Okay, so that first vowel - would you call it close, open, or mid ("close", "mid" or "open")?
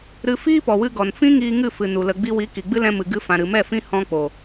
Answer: close